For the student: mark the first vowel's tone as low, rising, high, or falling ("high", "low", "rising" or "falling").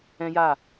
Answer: high